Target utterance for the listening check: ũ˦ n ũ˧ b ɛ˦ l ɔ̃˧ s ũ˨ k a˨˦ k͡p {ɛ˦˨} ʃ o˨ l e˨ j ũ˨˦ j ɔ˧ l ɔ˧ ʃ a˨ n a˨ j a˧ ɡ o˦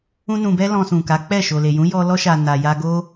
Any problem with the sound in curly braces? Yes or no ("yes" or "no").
no